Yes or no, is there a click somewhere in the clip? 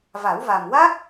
no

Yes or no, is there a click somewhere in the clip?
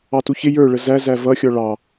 no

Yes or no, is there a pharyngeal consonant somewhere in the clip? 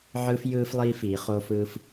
yes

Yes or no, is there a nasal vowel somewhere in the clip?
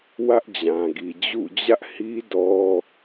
yes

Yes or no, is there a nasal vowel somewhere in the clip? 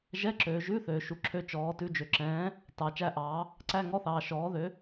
yes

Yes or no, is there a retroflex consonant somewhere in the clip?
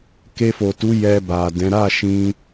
no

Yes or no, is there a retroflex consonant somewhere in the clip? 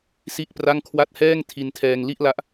no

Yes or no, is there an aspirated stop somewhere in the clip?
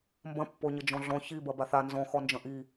no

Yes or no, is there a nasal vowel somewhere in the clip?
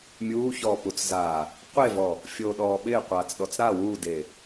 no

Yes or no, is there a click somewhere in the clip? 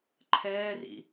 yes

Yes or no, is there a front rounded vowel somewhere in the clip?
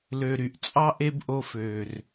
yes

